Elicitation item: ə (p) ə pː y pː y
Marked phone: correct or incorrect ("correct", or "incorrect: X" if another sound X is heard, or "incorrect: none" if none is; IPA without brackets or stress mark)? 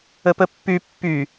correct